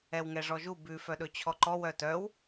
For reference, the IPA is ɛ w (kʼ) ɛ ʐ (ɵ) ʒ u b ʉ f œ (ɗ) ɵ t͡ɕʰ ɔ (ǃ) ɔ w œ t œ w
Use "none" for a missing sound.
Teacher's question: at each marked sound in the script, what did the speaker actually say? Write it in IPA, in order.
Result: ŋ, ɔ, ɗ, ǃ

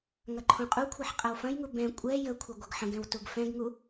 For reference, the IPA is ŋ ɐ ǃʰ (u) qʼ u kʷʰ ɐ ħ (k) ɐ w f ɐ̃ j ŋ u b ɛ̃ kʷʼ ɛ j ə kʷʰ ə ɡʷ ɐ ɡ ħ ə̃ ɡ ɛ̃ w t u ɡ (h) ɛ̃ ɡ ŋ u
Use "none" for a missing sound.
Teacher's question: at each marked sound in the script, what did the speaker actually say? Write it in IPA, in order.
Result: ũ, qʼ, f

